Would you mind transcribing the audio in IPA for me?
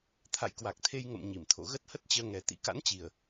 t̪ʰ a̰˧˨ j k w a˨˩ k̚ t̪ʰ e˧ j ŋ ə̰˧˨ m ɲ i˧˩ m t̪ʰ o̰˧˨ ɣ ə˦˥ t̚ h ə˦˥ t̚ t͡ɕ əː˧ ŋ ɛ˨˩ t̪ ḭ˧˥ k a̰˧˥ n t͡ɕ i˨˩ ə̯

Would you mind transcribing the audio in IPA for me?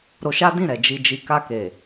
ɾ o˧ ʃ a˦ d ĩ˦˨ ɾ ɛ˨ d͡ʒ i˨ d͡ʒ i˨ k a˧ k e˨

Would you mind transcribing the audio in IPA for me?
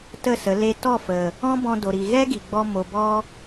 t ə˦˨ s ə˨˦ l e˧ t ɔ˦˨ f ə˨ | ɔ̃˦ b ɔ̃˧ d o˨ ɾ i˨ ɣ ɛ˦ ɡ i˨ ɡ͡b ɔ˧ m o˨ b ɔ˧

